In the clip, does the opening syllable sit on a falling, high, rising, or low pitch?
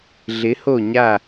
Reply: rising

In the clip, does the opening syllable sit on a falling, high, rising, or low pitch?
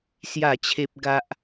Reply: falling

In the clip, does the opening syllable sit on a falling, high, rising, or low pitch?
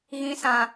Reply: low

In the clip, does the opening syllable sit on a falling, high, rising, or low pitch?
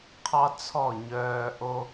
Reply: high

